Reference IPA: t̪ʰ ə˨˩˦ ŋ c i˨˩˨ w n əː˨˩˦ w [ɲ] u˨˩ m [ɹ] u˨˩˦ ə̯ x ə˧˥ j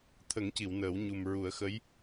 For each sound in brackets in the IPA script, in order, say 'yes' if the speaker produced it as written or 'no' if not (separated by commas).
yes, yes